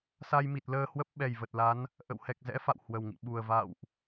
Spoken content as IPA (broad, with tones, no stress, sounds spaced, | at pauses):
s a˧ j m i˨˩ t̚ l əː˧ h w ə˦˥ p̚ ɓ ɛ˨˩ j v ə˨˩ t̚ l a˨˦ n | ʔ ə̰˧˨ w h ɛ˨˩ k̚ z ɛ̰˧˥ f a̰˧˨ w h w ə˨˩ w ŋ ḭ˧˨ ɓ u˨˩ ə̯ v a̰˧˨ w ʔ